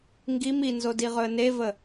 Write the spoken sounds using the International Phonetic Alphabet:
ŋ ɡ i m i n z o d i ʁ ɵ ə̯ n e v ə

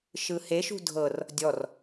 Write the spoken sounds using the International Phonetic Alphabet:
ʃ ɯ h e ʃ ṳ dʱ ɤ r | dʲ ɔ r

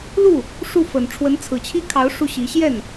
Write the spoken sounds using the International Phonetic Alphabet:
l u˥˩ | ʂ u˥˩ f ə˨˩ n ʈ͡ʂʰ w ə˧˥ n t͡sʰ ɹ̩˨˩ t͡ɕʰ i˥ kʰ ɑ˧˥ ʊ̯ ʂ u˥ ɕ i˧˥ ɕ j ɛ˥˩ n

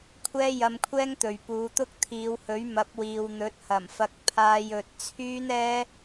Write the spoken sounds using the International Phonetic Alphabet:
kʷʰ ɛː˥ j ɐ˧ m kʷʰ ɛː˥ ŋ t̪ ɵ˨ ɥ p uː˨˧ t̪ ʊ˥ k̚ t̪ʰ iː˨˧ w h ɵ˨˥ ɥ m ɐ˨˥ p̚ w iː˨ w n̪ ɵ˨˥ t̚ h ɐ˨˩ m f ɐ˧ k̚ pʰ aː˧ j ɵ˨ t̚ t͡sʰ yː˥ n ɛː˥

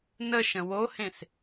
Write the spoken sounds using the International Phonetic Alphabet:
n ə ʃ ə̃ w o h ẽ s

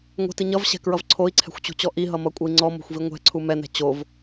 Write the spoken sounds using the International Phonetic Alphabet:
ŋʷ ɛ̤ t i ɲ ʌ v ɕ ɛ̤ k ɹ ʌ v ǀʰ o i̯ ǀʰ ɛ̤ xʷ t͡ɕ ṳ t͡ɕ ɔ ʔ i ɦ ʌ m ʌ kʷʼ ʌ i̯ ŋ͡ǀ ɔ m o̤ xʷ v i ŋʷ ɛ̤ ǀʰ u m ɛ n ɛ̤ t͡ɕ o v

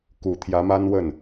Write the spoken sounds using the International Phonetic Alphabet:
k u˨˩ t̪ʰ j ä˧˥ m a˥ n w ə˥˩ n

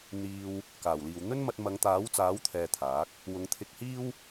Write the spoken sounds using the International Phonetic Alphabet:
n̪ iː˧ w | k aː˨˩ w l iː˨ w n̪ ɵ˥ n m ɐ˧ t̚ m ɐ˨˧ ŋ t̪ aː˨˥ w t͡s aː˨˥ w t̪ʰ ɛː˧ t̪ʰ aː˨˥ k̚ | w ʊ˨˧ ŋ t̪ʰ ɪ˧ k̚ h iː˥ w

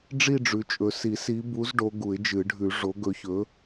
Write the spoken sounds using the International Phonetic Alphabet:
ɖ͡ʐ i˥˧ ɖ͡ʐ ʉ˨˦ t͡ʃʼ ɵ˨˦ s i˨˩˦ s i˨˦ b u˨˦ z ɖ o˨˦ ɡ u˨˩˦ ɪ̯ d͡ʒ ɨ˨˩˦ ɖʱ ʉ˨˩˦ ʐ o˨˦ ɡ ɵ˨˦ ç ɵ˨˦

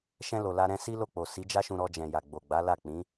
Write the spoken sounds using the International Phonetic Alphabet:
ʃ ɛ̃˧ l o˨ l a˧ ɾ ɛ̃˦ s i˦ l o˦˨ k͡p o˨ s i˨˦ d͡ʒ a˦ ʃ ũ˧ ɾ ɔ˧ d͡ʒ ɛ̃˨ j a˨ ɡ͡b o˨ ɡ͡b a˨˦ l a˦˨ k͡p ĩ˨˦

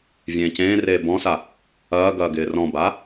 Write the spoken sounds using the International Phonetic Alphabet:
vʲ ẽː c ẽː r eː b ɔ̃ s a | ɐː ɡ ɐː ɡ ɪː r ɔ̃ b aː

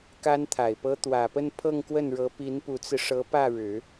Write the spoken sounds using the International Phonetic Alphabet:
k a˥ n t̪ʰ a˨˩ ɪ̯ p ɤ˥ t̪ w ä˨˩ p ə˥˧ n pʰ ɤ˥˧ ŋ k w ə˥˩ n ɻ ɤ˧˥ p i˧˥ n p u˧˥ t͡s ɹ̩˧ ʂ ɤ˧˥ p ä˥˩ ɻ ɻ̩˨˩˦

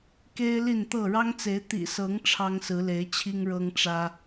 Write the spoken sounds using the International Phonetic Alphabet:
k e˦ ɪ̯ l i˥˨ n t̪ ɤ˥˨ ɻ ɑ˦ ŋ t͡s e˨˦ ɪ̯ t̪ ḭ˨˩ s ɤ˨˦ ŋ ʈ͡ʂʰ ɑ˦ ŋ s ɹ̩˨˦ l e˨˦ ɪ̯ t͡ɕʰ i˦ ŋ ɻ ɤ˦ ŋ ʈ͡ʂ ä˦

